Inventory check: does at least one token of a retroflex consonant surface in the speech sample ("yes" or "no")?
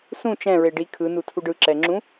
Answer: yes